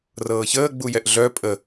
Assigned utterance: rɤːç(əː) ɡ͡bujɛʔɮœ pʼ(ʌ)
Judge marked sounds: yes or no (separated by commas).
yes, no